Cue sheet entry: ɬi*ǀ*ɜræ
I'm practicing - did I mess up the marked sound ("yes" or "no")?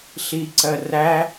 no